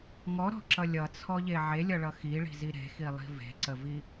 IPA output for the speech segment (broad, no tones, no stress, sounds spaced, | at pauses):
ŋ ɔ ɾ ɔ̤ ǁ ʌ lʲ ʌ t͡sʰ ɔ ʎ e ʕ e lʲ ʌ ɭ ʌ x i ɭ i̤ z i ɾ e̤ x i lˠ i̤ v e̤ ǀ ə v i